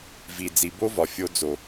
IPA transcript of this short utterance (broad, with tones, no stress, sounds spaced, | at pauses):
v i˩ d͡z i˩ b o˥ v ɒ˩ fʲ o˧ d͡z o˩